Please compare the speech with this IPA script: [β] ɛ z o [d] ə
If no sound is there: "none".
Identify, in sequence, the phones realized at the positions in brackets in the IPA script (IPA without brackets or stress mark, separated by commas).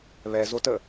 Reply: β, t